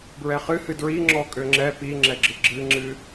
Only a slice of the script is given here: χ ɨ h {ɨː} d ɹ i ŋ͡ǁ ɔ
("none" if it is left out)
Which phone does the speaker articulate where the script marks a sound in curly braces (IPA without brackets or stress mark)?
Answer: ɨ